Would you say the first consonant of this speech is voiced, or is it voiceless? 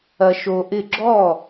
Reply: voiceless